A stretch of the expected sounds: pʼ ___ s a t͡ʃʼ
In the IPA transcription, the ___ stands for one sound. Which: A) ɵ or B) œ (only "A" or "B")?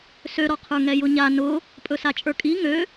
A